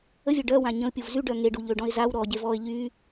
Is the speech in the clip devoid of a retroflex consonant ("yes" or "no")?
no